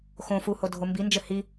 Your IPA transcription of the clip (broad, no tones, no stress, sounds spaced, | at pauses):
x õ f u h o dʱ o m b i n d͡ʒ ɘ h i